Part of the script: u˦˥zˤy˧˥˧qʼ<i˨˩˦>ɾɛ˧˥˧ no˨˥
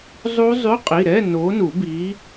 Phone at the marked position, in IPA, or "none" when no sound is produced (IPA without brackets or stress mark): i˩˧˩